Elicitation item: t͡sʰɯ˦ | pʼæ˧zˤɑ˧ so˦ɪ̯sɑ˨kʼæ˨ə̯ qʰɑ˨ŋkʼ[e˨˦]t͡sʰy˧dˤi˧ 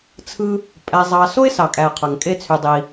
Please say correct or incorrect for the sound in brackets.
incorrect